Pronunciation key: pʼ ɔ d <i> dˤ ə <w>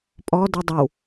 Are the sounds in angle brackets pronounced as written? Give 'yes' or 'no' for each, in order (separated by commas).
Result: no, yes